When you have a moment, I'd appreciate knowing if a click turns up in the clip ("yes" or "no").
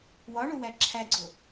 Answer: yes